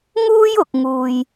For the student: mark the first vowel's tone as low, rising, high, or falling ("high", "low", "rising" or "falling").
high